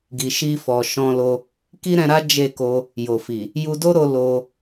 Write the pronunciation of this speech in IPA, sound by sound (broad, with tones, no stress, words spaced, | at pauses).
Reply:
ɡi˨ʃi˧fɔ˨ ʃɔ̃˧lo˧ | ki˦ɾɛ̃˧ɾa˦ d͡ʒe˦˨ko˧ | jo˨fi˨ | ju˧do˦ɾo˧ lo˧